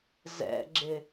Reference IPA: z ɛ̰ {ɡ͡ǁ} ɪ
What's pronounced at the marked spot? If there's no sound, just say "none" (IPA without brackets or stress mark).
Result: ɡ͡ǁ